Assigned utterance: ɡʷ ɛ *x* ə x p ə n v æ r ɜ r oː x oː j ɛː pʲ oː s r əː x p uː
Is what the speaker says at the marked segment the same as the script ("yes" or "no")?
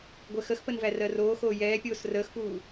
yes